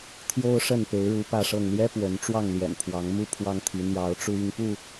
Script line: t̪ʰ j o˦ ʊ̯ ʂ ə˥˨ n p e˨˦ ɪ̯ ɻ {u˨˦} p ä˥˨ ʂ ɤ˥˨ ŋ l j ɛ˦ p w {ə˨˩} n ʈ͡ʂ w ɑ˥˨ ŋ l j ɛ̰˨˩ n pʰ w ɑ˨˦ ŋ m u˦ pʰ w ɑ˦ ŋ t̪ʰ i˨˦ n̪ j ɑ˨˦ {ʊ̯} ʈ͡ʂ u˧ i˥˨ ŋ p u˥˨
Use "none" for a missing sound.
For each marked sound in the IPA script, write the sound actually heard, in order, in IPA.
u˨˦, ə˨˦, ʊ̯

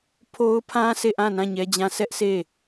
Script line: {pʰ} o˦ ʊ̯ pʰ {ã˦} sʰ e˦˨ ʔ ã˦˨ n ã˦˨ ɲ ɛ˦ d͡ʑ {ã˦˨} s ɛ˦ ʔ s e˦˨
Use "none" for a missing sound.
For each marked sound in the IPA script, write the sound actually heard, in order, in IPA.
pʰ, ã˦, ã˦

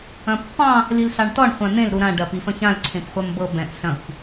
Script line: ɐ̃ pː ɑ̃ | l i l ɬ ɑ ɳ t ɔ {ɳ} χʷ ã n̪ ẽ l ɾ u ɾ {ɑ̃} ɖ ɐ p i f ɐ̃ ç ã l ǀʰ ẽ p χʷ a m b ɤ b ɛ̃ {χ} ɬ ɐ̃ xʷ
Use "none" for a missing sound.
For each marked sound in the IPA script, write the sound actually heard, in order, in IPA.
ɳ, ã, ʔ

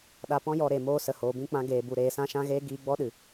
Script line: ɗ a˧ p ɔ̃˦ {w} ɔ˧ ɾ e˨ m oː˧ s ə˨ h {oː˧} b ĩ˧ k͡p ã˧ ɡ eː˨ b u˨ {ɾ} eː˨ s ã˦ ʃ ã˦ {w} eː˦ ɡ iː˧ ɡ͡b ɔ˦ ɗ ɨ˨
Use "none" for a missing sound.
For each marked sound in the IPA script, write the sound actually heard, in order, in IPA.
j, oː˨, ɾ, ɣ

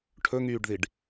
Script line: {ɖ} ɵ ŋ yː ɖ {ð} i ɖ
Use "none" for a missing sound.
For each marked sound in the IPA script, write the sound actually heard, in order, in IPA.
ʈʰ, ð

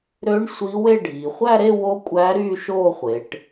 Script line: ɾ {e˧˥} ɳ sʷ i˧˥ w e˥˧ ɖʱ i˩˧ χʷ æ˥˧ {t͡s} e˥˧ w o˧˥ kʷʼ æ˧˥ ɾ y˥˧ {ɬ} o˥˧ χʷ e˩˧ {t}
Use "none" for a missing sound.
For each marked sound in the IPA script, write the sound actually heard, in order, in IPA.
ø˧˥, ɾ, ʃ, ʈ

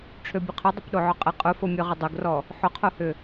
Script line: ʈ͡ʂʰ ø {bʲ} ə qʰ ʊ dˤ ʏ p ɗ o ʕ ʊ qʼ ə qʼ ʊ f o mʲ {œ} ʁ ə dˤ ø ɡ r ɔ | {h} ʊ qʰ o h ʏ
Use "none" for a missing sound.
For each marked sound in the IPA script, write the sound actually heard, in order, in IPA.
bʲ, ø, ħ

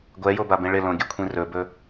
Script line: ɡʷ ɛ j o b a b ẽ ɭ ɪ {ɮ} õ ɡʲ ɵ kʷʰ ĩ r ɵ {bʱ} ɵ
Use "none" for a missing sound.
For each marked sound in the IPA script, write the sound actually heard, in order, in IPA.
l, b

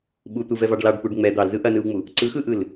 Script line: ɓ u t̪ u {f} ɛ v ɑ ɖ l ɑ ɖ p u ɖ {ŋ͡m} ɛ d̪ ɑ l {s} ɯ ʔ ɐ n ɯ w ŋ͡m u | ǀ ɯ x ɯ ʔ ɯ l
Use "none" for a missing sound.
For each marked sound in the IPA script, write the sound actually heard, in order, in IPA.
v, ŋ͡m, z

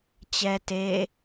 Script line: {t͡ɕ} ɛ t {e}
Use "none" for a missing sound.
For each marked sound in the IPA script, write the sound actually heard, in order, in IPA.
t͡ɕ, e

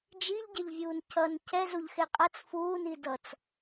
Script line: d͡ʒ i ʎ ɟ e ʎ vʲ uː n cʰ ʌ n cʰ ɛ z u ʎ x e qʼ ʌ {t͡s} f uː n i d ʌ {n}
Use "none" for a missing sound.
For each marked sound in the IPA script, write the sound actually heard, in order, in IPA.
t͡s, t͡s

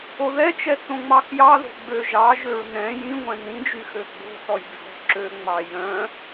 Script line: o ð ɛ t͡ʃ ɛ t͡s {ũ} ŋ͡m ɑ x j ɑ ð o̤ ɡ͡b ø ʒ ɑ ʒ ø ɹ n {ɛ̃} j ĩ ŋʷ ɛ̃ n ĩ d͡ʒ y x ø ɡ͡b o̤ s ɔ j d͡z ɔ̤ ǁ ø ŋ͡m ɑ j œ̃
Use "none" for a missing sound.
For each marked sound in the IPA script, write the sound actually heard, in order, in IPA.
õ, ɛ̃

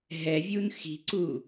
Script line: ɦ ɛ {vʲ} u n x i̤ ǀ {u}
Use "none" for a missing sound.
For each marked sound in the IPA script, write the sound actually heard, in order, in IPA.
vʲ, u

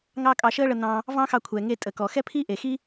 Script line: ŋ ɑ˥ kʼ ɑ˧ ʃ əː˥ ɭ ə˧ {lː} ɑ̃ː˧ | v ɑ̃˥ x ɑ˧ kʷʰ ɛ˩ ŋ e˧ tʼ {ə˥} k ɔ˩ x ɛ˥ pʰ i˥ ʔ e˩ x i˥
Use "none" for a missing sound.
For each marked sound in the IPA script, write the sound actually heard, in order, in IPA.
n̪, ə˩

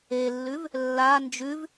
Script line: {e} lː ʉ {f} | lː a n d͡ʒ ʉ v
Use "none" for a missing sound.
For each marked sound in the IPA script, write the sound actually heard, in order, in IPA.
e, v

